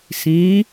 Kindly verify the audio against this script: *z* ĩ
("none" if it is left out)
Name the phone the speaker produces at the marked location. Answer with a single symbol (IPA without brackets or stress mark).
s